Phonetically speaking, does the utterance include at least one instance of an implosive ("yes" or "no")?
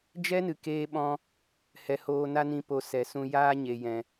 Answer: yes